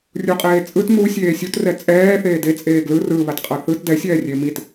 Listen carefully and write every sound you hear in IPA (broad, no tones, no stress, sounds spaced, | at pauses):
rʲ u qʼ eː t͡sʼ ɯ t m u sʲ eː sʲ u t r ɛ t͡sʼ ɛː θ eː d e t͡sʼ eː ɡ l ɯ r ɯ β a t qʼ ʌ θ ɯ t d ɛ sʲ ɛː rʲ e m i t